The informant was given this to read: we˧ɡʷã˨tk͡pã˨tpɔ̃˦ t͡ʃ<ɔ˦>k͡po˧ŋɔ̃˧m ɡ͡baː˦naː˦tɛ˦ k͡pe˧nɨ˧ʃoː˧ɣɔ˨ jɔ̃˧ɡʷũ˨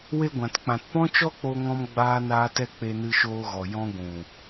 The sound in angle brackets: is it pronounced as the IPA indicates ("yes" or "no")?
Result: yes